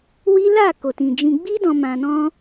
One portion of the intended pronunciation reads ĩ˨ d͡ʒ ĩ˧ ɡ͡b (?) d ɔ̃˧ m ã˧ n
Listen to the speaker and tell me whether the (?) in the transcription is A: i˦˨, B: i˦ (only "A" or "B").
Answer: B